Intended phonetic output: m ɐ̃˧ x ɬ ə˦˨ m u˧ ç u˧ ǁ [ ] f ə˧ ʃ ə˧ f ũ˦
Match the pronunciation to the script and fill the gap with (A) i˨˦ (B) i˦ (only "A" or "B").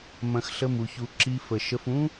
B